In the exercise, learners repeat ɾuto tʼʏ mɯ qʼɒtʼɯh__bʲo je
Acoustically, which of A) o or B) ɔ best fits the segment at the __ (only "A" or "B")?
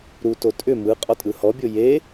B